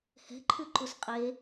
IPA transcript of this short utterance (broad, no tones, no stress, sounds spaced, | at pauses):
h ɛ̤ ǃʰ ʉ ǃ u s qʼ e